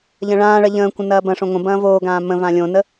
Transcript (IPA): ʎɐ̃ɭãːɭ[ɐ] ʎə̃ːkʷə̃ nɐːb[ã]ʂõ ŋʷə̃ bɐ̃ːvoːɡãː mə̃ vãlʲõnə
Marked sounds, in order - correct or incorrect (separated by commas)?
correct, incorrect